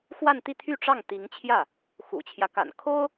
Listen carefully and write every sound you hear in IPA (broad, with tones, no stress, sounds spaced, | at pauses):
x w a˥˧ n t̪ i˥˧ t̪ʰ y˥˧ ʈ͡ʂ ɑ˥˩ ŋ t̪ i˧˥ ŋ t͡ɕʰ j ä˥˩ | x ṵ˨˩ t͡ɕʰ j ä˦ k a̰˨˩ n kʰ o˥ ʊ̯